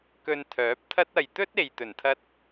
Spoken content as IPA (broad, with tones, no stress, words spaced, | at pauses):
kɵ˧n t̪ʰœː˨˥p̚t̪ʰɐ˥t̚ ɐ˨jt̪ɵ˥t̚ e˨j t̪ɵ˨˩nt̪ʰɐ˧t̚